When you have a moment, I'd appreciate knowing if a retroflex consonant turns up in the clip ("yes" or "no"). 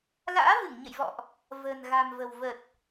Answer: no